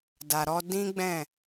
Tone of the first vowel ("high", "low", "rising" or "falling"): low